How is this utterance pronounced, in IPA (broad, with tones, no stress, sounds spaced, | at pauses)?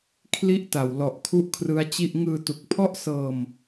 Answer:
kʰ l i˥˩ ʔ t a˨˩ w l ɔ˨˩ ʔ kʰ u˦˥ ʔ kʰ r ɯ˦˥ a̯ t͡ɕ i˥˩ ʔ ŋ ɯː˧ t u˨˩ k̚ pʰ ɔ˥˩ ʔ s ɤː˧ m